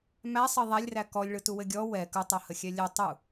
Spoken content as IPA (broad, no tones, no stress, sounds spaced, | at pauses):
m æ sˤ ɘ ðˤ æ lʲ r æ k ɔ lʲ ɭ ɯ t u w ɘ ɡʲ ɔ w ɛ k ɯ tˤ o h ə xʲ ɛ lʲ ɘ tˤ u